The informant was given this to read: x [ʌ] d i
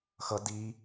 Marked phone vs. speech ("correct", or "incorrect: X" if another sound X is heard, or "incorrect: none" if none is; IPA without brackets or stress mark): correct